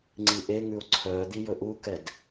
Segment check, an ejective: absent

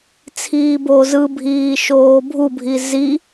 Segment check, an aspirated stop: present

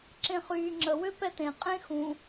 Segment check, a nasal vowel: present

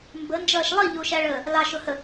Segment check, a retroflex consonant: present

